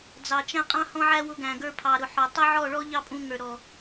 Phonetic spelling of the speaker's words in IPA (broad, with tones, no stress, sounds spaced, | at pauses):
d͡z ɑ˧ t͡ʃ æ̃˦ qʼ ɑ̃˦ h ɔ̃˦ ʕ æ˦ w ʊ˧ ɡ æ̃˨ ɡ ə˞˧ pʰ ɑ˨ ɾ ʊ˨ ħ ɔ˨ tˤ ʊ˦ ʕ ɔ˦˨ ɭ ɔ˦ ʎ ɑ˦ pʼ ũ˧ ŋ ə˞˨ ɾ ɔ˨